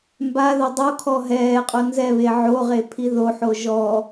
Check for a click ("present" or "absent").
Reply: absent